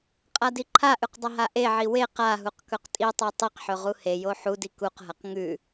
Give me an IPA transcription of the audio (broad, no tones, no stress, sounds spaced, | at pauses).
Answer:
qʼ a d i ǃʰ a ʔ ʉ q dˤ ɐ ɦ a ʔ e ʕ i w e q a ɦ u q k ɵ q tʼ i tˤ u tˤ i q ħ ɵ ʁ u h e j o ħ u d i k u q ɦ ɐ q ŋ ʉ